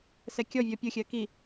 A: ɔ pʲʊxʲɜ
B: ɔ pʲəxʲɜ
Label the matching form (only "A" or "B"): A